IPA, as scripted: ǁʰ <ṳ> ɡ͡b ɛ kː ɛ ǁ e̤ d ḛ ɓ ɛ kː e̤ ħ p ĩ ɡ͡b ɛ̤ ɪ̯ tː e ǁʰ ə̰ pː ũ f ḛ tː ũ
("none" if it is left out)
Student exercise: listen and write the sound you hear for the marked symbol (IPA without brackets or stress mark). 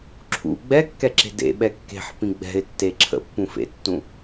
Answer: ṵ